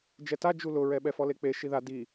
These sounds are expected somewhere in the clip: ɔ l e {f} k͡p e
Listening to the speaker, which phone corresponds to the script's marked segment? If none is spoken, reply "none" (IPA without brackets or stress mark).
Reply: none